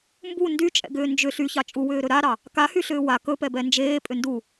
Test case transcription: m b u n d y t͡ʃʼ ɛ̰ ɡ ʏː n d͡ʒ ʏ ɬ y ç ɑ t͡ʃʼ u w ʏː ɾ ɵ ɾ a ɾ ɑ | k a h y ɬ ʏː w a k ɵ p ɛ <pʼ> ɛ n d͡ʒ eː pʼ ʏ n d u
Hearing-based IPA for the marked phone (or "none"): b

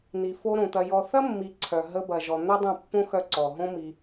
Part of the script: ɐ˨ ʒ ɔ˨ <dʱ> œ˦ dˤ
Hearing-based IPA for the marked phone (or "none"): n̪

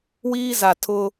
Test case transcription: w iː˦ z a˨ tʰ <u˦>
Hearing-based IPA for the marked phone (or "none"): ʊ˦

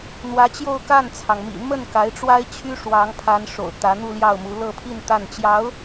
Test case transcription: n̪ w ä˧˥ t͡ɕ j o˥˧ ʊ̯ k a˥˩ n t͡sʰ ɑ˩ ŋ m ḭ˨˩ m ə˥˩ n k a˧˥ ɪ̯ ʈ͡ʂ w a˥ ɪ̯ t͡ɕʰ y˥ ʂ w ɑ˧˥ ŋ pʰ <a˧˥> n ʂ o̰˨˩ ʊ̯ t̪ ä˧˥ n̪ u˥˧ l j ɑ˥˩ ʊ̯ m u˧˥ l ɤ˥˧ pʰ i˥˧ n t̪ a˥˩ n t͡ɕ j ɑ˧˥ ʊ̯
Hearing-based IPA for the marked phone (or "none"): a˧˥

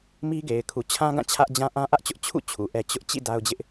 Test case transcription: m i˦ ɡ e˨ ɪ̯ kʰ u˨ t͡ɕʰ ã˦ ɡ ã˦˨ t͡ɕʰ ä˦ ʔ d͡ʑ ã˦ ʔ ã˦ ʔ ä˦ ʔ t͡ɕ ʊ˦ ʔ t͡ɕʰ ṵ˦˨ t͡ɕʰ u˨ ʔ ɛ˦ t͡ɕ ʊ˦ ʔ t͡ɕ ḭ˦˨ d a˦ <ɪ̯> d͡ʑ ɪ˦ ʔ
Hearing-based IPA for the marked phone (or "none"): ʊ̯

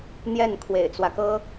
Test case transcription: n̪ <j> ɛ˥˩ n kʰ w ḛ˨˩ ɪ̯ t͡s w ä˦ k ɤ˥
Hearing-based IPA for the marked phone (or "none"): j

